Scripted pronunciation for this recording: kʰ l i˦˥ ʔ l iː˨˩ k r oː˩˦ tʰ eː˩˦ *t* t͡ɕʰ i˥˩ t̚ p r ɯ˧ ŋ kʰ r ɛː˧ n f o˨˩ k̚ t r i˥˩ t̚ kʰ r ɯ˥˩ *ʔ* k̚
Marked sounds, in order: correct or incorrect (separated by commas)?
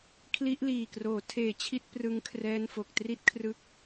incorrect, incorrect